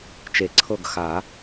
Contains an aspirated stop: yes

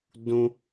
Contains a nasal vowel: yes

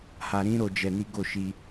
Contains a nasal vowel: yes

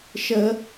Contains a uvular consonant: no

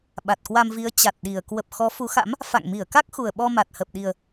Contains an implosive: yes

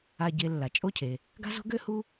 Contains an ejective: yes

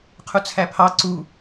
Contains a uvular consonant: yes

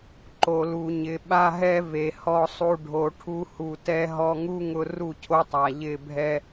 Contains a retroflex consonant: yes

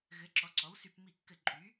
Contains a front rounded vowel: yes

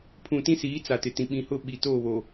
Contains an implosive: yes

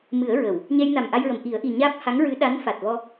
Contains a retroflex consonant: no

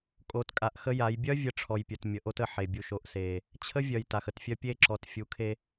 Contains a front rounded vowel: yes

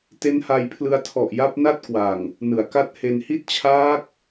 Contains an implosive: no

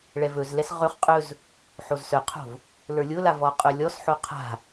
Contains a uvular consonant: yes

